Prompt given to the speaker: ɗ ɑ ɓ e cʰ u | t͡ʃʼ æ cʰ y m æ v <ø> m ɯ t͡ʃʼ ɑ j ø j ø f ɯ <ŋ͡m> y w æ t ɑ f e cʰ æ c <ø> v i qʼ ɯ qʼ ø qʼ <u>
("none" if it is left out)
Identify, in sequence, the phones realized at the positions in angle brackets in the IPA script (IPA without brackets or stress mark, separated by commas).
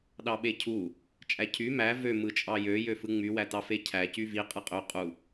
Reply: ø, ŋ͡m, y, u